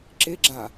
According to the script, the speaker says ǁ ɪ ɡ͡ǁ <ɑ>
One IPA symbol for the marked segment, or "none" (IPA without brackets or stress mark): a